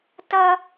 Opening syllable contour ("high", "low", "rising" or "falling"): high